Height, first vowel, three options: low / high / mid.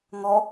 mid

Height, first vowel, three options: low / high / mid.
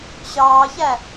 low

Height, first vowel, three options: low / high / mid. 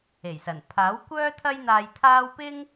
mid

